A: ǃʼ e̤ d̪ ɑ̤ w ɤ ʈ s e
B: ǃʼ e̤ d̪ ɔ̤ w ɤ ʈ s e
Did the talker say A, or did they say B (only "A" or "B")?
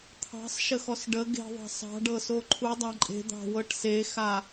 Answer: A